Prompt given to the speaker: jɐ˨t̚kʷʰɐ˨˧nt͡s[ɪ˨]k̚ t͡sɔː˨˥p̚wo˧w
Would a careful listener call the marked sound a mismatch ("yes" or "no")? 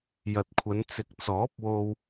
no